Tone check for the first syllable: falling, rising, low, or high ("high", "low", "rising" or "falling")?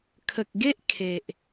low